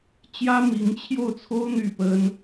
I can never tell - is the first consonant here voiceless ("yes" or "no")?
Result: yes